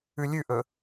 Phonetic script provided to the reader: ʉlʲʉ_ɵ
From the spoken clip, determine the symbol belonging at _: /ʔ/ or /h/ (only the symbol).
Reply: ʔ